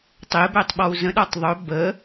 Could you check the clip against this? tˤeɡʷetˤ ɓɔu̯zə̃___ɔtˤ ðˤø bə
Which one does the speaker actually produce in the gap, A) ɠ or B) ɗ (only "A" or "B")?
B